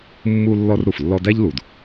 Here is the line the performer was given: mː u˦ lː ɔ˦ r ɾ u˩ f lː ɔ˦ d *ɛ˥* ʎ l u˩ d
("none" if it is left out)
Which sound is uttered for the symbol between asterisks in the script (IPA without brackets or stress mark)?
æ˥